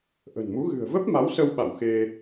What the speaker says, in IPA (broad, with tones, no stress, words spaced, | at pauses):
ʔə̤˨˩nmu˨˦ ɣɨ̤˨˩ə̯və˦˥p̚ ma˨˦wsə˧wɓa̰˧˨w xe˧